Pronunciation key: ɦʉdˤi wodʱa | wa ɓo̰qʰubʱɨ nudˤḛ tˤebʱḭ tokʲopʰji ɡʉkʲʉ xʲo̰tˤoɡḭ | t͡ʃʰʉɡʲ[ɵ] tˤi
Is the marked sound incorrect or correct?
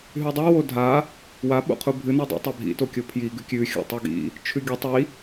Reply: correct